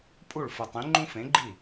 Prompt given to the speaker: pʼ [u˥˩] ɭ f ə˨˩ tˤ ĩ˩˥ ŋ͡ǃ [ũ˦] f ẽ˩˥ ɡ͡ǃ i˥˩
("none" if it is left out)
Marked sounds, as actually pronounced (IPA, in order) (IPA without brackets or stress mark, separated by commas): u˥˩, ũ˦